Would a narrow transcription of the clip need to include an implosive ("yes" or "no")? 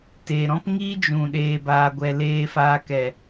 yes